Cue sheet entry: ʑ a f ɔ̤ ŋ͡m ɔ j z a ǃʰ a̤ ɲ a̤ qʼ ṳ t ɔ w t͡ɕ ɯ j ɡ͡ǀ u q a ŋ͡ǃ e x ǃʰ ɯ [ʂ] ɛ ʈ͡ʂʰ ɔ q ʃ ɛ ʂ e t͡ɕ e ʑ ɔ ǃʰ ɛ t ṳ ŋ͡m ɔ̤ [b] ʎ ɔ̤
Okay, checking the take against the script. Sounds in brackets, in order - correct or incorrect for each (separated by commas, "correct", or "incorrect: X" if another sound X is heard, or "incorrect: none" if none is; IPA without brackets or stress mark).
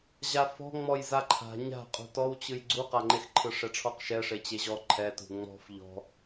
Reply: correct, incorrect: f